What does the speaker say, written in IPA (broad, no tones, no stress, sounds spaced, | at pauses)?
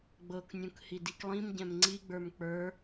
ɡ͡b ɤ k nʲ ũ k h i d i k lˠ ĩ m ɟ ɛ̃ m ŋ͡ǀ i ɡ͡b ə˞ m k͡p ə˞